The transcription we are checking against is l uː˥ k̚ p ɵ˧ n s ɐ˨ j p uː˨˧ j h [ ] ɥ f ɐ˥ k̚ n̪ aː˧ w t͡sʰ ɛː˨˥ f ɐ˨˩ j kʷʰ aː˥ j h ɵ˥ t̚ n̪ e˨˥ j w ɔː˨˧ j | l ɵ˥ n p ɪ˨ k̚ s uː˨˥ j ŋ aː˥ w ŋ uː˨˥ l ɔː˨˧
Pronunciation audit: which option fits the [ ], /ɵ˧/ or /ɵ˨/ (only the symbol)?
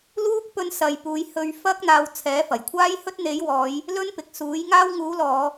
ɵ˧